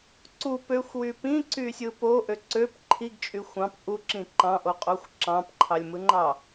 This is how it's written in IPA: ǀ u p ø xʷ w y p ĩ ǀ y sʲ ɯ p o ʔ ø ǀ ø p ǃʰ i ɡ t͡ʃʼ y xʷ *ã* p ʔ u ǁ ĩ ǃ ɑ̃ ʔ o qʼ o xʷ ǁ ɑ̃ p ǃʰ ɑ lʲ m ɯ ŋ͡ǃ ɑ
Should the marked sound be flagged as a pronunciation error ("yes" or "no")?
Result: yes